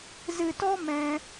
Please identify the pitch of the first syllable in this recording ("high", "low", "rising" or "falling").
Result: low